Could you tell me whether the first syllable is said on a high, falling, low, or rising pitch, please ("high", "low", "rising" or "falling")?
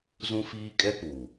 high